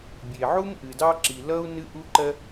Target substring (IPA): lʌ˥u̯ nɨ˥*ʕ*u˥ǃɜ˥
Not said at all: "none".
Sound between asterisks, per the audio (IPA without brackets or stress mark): ʔ